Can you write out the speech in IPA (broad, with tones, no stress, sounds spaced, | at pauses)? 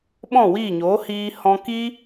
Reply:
ɓ ɔ̃˦˨ w iː˦˨ ɲ oː˨˦ h iː˧ h ɔ̃˧ k iː˦